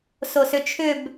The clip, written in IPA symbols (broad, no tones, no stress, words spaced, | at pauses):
sosʏt͡ʃʰʏb